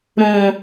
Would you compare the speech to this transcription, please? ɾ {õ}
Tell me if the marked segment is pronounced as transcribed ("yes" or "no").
yes